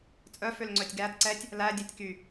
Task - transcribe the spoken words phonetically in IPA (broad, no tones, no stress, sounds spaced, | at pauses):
t͡sʼ œ f ø l ŋ͡ǀ œ tʲ ɡ æ d ǀ ɛ tʲ | l æ dʲ e tʲ k y